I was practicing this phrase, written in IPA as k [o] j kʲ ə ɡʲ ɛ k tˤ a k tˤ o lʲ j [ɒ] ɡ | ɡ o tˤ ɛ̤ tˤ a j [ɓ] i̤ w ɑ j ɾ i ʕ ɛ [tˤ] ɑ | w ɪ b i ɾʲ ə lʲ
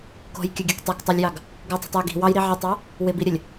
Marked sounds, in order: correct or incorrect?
incorrect: o̤, incorrect: ɑ, incorrect: ɡ, correct

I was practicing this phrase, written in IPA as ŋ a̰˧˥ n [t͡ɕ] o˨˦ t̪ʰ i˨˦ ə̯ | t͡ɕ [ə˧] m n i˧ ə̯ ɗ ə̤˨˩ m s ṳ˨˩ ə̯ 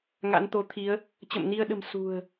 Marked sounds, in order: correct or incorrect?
incorrect: t̪, incorrect: ə̰˧˨

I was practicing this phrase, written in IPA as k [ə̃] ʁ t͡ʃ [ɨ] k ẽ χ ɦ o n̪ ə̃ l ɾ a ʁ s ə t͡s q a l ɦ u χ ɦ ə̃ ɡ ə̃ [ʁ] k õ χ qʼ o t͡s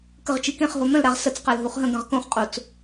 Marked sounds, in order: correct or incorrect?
incorrect: ə, correct, correct

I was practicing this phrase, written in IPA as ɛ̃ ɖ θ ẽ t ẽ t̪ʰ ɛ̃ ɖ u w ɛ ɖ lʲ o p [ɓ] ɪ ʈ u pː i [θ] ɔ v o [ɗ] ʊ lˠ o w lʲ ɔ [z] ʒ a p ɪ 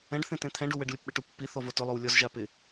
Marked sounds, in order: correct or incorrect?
correct, correct, incorrect: t, correct

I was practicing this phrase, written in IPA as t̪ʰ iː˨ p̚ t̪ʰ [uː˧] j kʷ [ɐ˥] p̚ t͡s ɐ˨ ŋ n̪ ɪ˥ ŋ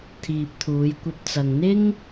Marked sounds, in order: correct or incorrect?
incorrect: uː˨˧, incorrect: ɐ˧

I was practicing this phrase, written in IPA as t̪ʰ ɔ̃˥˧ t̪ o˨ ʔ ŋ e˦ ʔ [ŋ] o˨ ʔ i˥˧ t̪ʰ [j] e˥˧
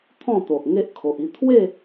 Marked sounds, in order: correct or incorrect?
incorrect: kʰ, incorrect: w

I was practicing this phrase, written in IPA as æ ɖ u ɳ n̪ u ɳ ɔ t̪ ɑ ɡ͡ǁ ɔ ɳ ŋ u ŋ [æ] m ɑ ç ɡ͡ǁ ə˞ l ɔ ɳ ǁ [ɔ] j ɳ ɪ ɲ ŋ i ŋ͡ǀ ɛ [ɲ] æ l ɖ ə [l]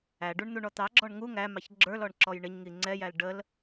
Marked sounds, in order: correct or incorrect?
correct, correct, incorrect: j, correct

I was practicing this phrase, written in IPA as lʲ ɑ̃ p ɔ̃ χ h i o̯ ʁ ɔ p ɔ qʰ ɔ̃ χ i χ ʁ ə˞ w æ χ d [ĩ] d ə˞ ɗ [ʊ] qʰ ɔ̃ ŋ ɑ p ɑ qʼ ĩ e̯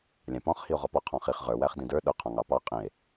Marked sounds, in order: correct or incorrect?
correct, correct

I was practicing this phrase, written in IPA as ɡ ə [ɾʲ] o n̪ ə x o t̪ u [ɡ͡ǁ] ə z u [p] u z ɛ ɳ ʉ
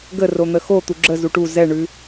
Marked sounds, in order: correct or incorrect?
incorrect: r, correct, incorrect: ʈ

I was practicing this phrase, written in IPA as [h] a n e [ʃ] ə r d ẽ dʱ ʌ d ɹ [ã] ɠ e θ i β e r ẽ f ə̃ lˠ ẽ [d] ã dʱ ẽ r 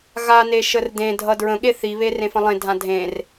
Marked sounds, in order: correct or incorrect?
incorrect: ɣ, correct, incorrect: ə̃, incorrect: dʱ

